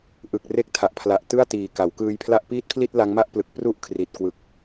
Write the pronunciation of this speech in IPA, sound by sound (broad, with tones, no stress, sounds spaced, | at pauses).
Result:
ʔ ɯ˨˩ k̚ r e˦˥ k̚ tʰ a˨˩ ʔ pʰ l a˨˩ ʔ t ɯ˥˩ a̯ t iː˨˩ k a˩˦ w k ɯː˧ j pʰ l a˥˩ ʔ p iː˥˩ t̚ pʰ l i˥˩ t̚ l a˦˥ ŋ m a˥˩ ʔ p l ɯ˨˩ k̚ p r u˥˩ ʔ kʰ r i˨˩ t̚ k w ɯ˨˩ k̚